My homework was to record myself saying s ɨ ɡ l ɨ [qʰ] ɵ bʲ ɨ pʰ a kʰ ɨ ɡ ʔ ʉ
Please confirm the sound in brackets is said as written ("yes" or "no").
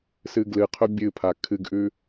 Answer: yes